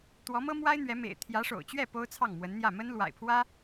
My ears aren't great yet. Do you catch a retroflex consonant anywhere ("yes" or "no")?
yes